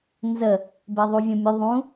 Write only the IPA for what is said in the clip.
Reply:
nzə | beðˤuvʲõmʲʊ ðˤũ

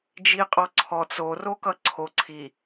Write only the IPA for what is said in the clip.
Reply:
d͡ʒiqʼɔǀʰɔt͡s orokʌ ǀʰo ǀʰi

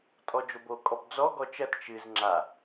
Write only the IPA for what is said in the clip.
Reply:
tʼɔd͡ʒobo kʼɔpd͡zɔ ɡɔt͡ʃɐt t͡ʃɨz ŋ͡ǁa

